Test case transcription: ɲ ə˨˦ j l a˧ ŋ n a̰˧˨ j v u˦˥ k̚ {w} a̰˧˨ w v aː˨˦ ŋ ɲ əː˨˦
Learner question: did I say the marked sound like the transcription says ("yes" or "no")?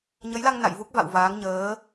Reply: no